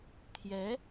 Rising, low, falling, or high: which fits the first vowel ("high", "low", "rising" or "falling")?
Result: rising